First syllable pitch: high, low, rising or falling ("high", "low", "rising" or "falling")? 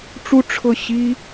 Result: high